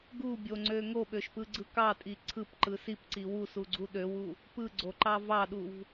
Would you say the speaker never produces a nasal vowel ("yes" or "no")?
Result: yes